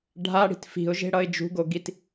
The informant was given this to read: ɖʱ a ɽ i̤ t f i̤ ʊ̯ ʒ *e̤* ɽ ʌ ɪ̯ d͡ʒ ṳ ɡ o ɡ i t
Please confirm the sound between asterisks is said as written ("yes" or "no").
yes